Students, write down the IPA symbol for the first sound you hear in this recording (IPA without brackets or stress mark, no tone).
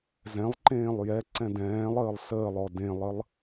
z